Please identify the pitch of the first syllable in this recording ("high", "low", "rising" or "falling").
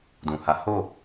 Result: low